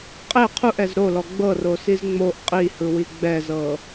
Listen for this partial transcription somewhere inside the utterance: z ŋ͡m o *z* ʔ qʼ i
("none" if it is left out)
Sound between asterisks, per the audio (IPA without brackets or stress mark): none